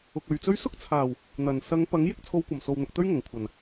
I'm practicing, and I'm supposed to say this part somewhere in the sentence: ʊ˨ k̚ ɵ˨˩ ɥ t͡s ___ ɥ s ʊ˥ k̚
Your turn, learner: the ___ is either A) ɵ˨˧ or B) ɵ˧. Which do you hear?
B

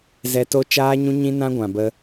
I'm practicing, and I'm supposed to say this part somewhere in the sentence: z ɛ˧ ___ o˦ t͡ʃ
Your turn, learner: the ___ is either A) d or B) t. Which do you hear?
B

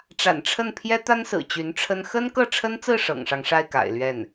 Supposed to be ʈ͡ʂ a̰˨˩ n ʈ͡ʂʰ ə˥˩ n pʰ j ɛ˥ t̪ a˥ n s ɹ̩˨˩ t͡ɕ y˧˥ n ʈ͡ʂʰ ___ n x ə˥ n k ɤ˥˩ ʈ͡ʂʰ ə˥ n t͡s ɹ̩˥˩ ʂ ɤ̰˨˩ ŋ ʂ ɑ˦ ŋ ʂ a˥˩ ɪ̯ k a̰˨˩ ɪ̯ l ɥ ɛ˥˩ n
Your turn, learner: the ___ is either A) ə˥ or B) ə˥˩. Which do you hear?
A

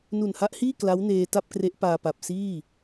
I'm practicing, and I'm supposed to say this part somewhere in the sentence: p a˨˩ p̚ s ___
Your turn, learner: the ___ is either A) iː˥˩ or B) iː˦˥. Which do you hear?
A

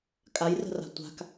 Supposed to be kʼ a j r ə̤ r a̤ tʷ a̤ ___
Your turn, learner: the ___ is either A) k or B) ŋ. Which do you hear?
A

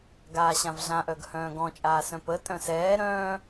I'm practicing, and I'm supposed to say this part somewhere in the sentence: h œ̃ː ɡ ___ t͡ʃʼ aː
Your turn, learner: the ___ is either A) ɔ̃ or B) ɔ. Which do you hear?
A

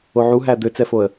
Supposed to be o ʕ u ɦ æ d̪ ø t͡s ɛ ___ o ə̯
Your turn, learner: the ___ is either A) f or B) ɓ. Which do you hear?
A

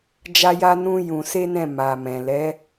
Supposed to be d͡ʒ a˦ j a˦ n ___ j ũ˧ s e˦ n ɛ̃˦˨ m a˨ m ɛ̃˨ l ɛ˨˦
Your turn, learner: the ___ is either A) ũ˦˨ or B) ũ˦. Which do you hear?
B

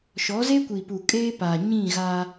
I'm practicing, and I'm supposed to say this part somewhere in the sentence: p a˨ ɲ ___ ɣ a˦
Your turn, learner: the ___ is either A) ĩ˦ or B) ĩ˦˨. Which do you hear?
B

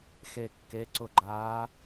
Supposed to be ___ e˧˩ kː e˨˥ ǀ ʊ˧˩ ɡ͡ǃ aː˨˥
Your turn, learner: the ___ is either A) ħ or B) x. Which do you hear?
B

